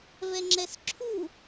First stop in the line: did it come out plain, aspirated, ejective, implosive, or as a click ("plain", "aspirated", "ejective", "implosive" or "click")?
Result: click